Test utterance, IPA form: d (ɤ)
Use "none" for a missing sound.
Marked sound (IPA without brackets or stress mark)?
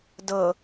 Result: ɤ